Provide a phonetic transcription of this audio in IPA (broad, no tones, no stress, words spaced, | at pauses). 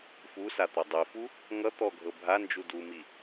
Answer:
fusat̪o dˤifu | ŋʌ t̪ɔɡʱɤ bʱand͡ʒu dumi